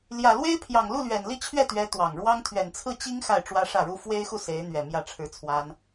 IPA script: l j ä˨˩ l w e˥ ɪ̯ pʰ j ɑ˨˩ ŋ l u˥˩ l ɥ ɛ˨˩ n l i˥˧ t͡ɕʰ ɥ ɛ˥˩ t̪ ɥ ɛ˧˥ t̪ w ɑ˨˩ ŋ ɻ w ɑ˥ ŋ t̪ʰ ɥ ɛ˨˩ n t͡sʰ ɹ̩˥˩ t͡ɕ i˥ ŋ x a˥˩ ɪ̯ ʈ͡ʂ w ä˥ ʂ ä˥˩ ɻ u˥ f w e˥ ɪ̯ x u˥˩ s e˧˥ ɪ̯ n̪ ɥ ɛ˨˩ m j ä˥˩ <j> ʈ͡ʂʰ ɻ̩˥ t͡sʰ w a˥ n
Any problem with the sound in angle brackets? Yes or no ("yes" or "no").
yes